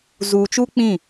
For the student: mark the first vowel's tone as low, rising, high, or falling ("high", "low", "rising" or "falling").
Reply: low